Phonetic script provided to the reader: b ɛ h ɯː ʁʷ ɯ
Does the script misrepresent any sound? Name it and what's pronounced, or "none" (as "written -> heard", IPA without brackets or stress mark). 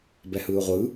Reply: none